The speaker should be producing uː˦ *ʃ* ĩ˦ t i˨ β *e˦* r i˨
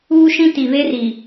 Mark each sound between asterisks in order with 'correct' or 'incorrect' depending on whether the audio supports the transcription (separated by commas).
correct, correct